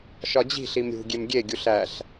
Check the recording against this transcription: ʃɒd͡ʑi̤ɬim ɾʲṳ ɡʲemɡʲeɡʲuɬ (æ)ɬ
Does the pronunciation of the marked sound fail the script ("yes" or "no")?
no